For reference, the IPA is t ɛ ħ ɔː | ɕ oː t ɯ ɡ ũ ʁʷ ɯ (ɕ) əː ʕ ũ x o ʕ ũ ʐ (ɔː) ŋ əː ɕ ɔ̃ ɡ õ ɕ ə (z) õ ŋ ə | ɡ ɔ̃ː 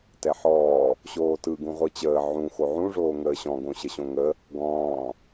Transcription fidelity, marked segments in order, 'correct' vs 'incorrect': incorrect: t͡ɕ, incorrect: oː, incorrect: ɕ

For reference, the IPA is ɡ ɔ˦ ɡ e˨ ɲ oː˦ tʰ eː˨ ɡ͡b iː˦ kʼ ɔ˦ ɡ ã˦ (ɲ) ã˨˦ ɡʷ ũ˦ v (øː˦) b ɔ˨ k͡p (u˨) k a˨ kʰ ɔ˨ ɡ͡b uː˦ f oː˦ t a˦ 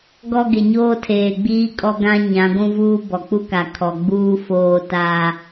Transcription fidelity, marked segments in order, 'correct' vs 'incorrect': correct, incorrect: uː˦, incorrect: u˦

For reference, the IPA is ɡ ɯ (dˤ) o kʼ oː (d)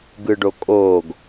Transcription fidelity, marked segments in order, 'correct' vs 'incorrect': incorrect: ɖ, incorrect: ɡ

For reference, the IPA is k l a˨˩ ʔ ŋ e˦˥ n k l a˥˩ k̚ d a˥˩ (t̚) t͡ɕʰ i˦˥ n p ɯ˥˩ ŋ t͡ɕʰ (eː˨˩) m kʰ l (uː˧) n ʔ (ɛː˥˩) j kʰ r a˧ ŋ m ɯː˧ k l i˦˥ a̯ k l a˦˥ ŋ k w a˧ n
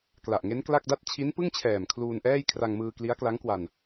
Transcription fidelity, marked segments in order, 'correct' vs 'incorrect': correct, incorrect: ɛː˨˩, correct, correct

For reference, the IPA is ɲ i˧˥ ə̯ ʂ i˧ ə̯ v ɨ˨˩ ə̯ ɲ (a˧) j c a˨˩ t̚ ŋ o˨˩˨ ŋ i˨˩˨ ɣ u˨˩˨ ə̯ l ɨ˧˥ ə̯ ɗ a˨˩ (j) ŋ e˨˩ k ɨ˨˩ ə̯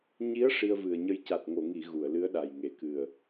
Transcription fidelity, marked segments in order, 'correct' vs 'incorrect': incorrect: ə˧, correct

